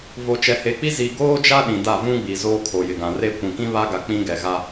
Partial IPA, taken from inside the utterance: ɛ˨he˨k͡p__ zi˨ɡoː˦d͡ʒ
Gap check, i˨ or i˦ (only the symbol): i˦